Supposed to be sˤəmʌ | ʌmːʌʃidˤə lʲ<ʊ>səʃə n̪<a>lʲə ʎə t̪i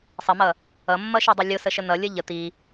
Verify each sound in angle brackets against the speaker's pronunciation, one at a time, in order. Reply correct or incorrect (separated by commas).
correct, incorrect